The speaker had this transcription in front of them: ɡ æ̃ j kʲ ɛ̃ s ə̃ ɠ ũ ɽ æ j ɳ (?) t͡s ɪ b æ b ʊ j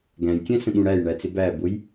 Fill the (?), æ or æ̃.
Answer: æ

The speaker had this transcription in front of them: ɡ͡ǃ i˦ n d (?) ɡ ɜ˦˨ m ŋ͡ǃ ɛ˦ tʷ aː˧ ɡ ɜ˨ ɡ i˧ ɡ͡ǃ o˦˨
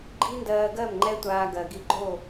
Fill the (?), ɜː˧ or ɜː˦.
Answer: ɜː˧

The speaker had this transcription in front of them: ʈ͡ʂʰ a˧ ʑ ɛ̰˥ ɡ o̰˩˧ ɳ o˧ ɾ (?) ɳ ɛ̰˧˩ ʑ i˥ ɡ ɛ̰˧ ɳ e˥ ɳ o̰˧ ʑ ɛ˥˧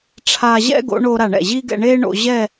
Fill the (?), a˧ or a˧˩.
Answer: a˧˩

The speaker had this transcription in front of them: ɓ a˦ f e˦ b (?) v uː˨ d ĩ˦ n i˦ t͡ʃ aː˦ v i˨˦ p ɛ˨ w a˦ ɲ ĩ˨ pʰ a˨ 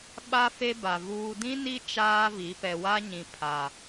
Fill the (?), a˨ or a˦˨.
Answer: a˨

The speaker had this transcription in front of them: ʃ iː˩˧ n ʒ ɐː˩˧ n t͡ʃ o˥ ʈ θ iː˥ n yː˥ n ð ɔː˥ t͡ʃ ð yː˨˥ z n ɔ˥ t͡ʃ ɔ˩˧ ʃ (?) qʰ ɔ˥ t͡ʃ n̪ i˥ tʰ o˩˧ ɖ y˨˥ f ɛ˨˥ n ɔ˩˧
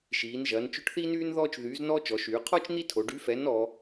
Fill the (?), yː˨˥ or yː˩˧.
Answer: yː˩˧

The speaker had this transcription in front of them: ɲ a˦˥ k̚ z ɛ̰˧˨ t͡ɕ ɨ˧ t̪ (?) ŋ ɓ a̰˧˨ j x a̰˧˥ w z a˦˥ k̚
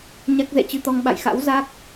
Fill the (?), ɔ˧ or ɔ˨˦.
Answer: ɔ˧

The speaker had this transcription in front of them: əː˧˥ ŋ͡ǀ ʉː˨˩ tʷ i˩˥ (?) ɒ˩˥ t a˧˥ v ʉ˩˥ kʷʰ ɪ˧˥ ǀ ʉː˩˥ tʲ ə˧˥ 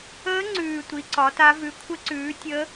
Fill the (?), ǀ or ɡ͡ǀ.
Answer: ǀ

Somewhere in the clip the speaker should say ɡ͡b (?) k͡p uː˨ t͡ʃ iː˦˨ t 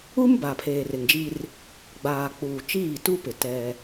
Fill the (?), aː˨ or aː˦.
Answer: aː˨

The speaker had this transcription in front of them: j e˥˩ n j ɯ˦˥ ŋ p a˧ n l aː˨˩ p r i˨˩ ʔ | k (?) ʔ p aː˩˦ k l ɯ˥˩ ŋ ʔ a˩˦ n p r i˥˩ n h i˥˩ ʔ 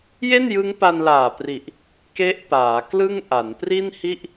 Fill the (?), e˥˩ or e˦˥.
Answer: e˦˥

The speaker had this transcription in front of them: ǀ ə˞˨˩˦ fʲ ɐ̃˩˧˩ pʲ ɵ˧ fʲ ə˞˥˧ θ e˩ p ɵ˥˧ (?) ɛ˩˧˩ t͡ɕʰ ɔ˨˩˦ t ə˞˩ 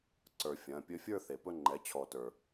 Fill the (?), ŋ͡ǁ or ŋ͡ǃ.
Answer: ŋ͡ǃ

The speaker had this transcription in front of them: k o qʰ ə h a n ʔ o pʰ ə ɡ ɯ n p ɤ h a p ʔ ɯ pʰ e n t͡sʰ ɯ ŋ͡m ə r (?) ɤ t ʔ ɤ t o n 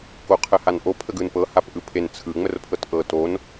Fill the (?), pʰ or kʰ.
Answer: pʰ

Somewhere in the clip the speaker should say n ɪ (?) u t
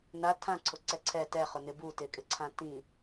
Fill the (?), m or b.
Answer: b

